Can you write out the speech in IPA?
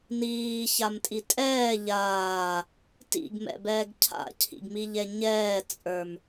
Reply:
niːçamtʼi tʼɛː ʎaː | tḭɡmɛ̰bɛːɡ cʰa̰cʰḭɡmiʎɛ ɲɛːt͡sʼə˞m

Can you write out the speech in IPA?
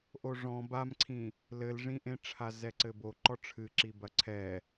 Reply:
ʔoʐɔ̃ bamǀʰĩ | lɘlʐĩʔẽ ʈ͡ʂʰazɛǀɘbo ǃɔʈ͡ʂʰɨǁibɐ ǀʰɛ

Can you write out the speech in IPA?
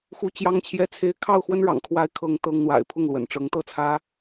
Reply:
xu˥ t͡ɕjɑ˥ŋt͡ɕʰjɛ˥t͡sʰe˥ɪ̯ kʰɑ˥˩ʊ̯xwə˥nɻɑ̰˨˩ŋkʰwa˧˥ɪ̯ kʰɤ˥ŋt̪ɤ˥ŋ n̪wa̰˨˩ɪ̯pʰʊ˥˩ŋlwə̰˨˩n ʈ͡ʂɤ˧˥ŋt̪ɤ˥t͡sʰä˥

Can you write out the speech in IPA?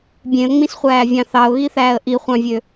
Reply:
bʲẽə̯ŋ͡mĩsχʷæːvʲɑ̃ θɑʊ̯ɣiθæːə̯ ʔiχʷɑ̃vʲø

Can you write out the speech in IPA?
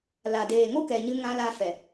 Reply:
la˨ deː˨ŋo˦kɛ˨ ɲɨ˧ ŋã˧la˧ fɛ˨

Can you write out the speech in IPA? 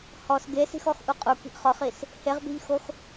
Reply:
hɔs ɡesi̤xɔxʔu qʼuki̤ʔ χɔχis | heʁbi̤ʎxox

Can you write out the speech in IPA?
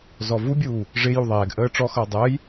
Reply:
zɔvubʲuː | ʐɪ juðˤɛːɡʔəː ʈ͡ʂɔxʌː dˤəːj

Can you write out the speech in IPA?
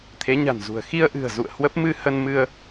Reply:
t̪ʰe˨˦ɲa̤˨˩nzṳ˨˩ə̯ xi˧ə̯ʔɨ̤˨˩ə̯ zṵ˧˨ə̯ hwə˦˥p̚mɨ˧ hə˧nmɨ˧ə̯

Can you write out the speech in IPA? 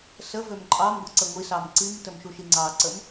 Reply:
səvøm ǃʼɑmɡʷəǀə ŋʷisɑm ǀimtəmʃuʃi ŋ͡ǀɑǀəm

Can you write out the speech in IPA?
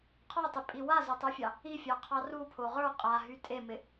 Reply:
qʰɔtˤɪpʼi wazotˤə˞fʲɑ | ifʲɑqʰɑ rupʰo ʁə˞ qʼaɦy tʼemɪ

